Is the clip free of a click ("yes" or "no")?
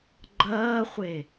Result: no